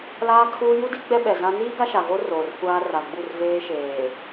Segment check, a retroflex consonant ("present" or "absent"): absent